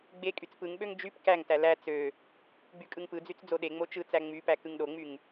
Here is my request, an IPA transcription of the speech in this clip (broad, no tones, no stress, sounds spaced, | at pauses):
ɡ͡b e kʼ y t͡s p ɯ ŋ ɓ ø ŋ d͡ʒ y p k æ ŋ t æ l æ t͡s ø | ɡ͡b y kʼ ɯ ŋ p ɯ d͡z y t͡s d͡z o ɗ e ŋ͡m o t͡ʃ ɯ t͡s æ ŋ͡m y p æ k ɯ ŋ ɗ o ŋ͡m y ŋ